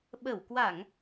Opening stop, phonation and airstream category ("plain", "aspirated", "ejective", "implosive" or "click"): implosive